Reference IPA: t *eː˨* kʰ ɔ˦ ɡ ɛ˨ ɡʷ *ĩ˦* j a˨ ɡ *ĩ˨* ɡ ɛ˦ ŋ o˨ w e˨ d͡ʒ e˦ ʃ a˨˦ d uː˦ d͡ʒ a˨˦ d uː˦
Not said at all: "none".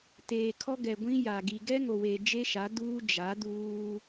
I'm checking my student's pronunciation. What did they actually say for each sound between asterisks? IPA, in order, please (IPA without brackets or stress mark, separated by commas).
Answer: eː˨, ĩ˦, i˨